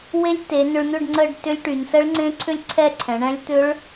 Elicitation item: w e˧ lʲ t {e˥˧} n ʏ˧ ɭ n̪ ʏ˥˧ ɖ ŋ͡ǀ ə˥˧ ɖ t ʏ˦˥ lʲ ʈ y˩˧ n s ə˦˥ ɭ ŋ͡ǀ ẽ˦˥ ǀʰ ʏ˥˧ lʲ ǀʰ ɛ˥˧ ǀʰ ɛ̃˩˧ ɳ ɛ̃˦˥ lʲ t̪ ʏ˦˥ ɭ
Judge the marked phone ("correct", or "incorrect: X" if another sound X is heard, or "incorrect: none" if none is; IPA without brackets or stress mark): incorrect: e˩˧